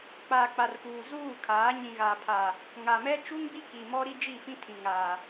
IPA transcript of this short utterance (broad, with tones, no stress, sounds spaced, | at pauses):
k͡p aː˨ k͡p a˨ r p uː˨ z uː˦˨ kʰ aː˨˦ ɲ ĩ˨ ɣ a˨ pʰ a˨ | ŋ a˨ m ɛ˦ t͡ʃ u˦ ŋ b i˦ k i˨ m ɔ˦ ɾ i˦ d͡ʒ i˦˨ f ĩ˦ tʰ ĩ˨ ŋ aː˨